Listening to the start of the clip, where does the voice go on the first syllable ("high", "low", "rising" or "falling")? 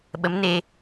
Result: rising